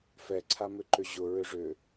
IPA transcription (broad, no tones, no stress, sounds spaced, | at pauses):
f ɛ ǀʰ a m ʏ ǃ ʏ ʑ ʊ ɹ ʏ ʐ ʏ